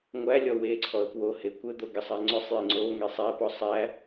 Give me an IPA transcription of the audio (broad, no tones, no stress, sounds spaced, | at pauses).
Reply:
ŋʷ æ lʲ ɔ w e ǀʰ ɔ ə̯ p w o h e kʷ ɘ d̪ o ɡ ɘ sˤ æ ŋ͡ǀ ʊ sˤ j e ŋ͡ǀ o ŋ e sˤ æ p ɔ sˤ æ